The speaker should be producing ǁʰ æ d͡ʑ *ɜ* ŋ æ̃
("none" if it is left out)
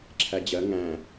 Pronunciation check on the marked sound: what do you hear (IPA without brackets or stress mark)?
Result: ɜ